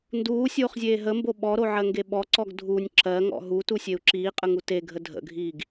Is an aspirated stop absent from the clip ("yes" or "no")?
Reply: yes